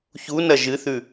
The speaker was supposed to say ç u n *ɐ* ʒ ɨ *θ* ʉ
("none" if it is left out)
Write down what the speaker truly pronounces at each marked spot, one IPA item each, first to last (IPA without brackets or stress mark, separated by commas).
ɐ, θ